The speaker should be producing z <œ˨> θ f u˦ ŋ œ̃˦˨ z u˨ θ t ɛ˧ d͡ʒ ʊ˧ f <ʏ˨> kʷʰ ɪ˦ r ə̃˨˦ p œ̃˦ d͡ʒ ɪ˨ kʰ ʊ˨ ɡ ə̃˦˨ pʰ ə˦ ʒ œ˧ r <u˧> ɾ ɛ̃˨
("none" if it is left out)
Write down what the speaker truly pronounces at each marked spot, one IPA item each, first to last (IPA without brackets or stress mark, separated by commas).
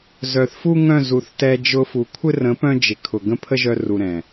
œ˨, u˨, u˧